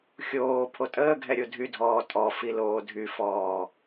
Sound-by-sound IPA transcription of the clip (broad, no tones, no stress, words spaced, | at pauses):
xʲoː pʰotʼəːɡʱɛ ɾʲodʱydʱɔː tʼɔfi loːdʱyfɔː